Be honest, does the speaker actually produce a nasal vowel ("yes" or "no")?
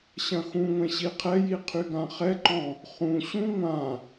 yes